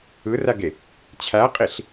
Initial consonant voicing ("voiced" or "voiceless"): voiced